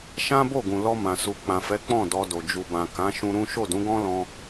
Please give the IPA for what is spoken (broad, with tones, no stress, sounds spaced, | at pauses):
ʃ ã˦ b o˦˨ ɡ ũ˨ l ɔ˧ m ã˨ s u˨ k͡p ã˨ f ɛ˨˦ k͡p ɔ̃˦˨ d ɔ˧ d o˨ d͡ʒ u˨ b ã˨ k ã˨˦ ʃ ũ˦ ɾ ũ˦ ʃ o˦˨ d ũ˨˦ ɡ ɔ̃˦ l ɔ̃˧